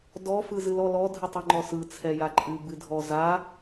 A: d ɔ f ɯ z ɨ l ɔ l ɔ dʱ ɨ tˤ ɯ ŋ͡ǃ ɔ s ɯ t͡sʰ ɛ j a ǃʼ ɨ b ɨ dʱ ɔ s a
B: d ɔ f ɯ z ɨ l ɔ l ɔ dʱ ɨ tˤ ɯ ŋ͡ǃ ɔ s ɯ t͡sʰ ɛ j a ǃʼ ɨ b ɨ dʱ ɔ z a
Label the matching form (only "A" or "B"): B